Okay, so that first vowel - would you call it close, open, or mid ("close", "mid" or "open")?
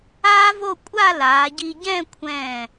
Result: open